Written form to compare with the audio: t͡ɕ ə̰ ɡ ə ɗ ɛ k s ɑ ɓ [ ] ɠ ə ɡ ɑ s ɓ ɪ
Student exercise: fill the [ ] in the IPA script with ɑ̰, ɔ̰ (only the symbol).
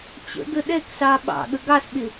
ɑ̰